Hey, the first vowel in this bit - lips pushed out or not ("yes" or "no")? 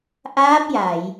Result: no